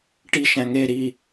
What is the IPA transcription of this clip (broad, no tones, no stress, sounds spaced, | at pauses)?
ʈ i ʃ æ̃ ŋ e ɾ i